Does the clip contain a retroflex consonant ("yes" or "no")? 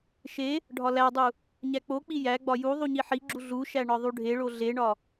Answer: yes